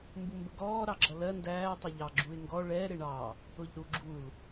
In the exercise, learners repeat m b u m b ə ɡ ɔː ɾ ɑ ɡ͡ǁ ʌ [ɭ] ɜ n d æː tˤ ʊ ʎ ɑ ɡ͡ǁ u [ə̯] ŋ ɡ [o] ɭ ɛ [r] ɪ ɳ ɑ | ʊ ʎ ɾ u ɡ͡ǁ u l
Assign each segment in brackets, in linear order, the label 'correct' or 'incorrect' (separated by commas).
incorrect, incorrect, incorrect, incorrect